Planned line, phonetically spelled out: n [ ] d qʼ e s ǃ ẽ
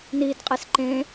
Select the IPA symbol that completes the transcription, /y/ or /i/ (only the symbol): i